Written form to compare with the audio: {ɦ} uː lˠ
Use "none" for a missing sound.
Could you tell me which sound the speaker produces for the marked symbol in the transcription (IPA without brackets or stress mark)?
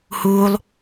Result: h